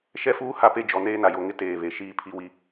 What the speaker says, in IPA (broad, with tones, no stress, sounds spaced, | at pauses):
ʃ ɛ˦ f uː˦ h a˦ p e˦ d͡ʒ ɔ˨ n eː˦ n a˨ j o˨ ŋ ɪ˦ t eː˨ β e˨ ʃ iː˦ pʰ i˦ w i˦